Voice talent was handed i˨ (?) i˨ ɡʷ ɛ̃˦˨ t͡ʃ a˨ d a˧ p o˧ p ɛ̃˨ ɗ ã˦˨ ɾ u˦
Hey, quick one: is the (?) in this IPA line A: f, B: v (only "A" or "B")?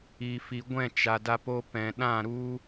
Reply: A